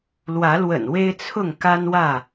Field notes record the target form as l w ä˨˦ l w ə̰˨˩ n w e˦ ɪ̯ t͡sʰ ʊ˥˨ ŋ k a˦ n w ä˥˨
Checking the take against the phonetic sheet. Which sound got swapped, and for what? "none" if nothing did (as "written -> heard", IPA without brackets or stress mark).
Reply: none